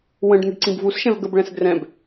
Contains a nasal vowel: yes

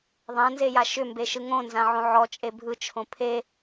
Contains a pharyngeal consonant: yes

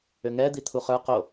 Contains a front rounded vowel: yes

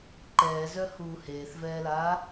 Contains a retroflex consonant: no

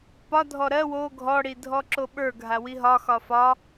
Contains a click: yes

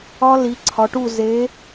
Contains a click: yes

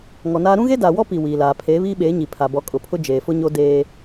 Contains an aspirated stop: yes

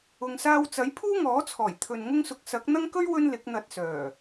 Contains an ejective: no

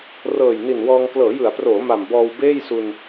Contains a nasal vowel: no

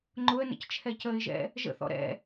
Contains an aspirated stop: yes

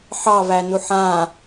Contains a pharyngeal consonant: yes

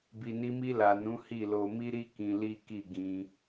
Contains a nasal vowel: yes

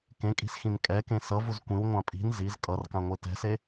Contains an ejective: yes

